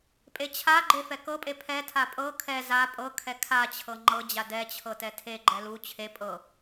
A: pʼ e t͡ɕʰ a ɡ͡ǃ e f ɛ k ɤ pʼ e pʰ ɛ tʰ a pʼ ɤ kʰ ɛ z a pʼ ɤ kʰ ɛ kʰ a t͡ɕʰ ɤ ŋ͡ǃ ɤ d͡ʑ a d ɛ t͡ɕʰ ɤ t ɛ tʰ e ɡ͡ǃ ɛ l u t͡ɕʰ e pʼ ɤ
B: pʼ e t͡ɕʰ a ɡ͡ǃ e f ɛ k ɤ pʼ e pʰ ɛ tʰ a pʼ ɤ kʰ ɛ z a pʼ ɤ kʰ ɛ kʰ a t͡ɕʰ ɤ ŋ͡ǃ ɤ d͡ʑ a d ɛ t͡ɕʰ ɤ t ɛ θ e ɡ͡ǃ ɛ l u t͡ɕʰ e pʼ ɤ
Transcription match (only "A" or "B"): A